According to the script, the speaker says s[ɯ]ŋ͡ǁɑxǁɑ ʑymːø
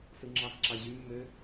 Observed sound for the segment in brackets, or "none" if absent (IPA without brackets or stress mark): ɯ